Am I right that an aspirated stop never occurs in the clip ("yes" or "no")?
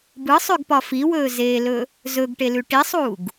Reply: yes